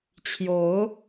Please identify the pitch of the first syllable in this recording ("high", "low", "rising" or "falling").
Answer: rising